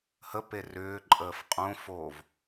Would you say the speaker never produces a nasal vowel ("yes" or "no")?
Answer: no